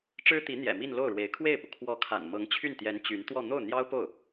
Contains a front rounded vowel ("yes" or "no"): yes